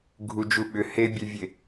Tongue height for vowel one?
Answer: high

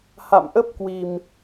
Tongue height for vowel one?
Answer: low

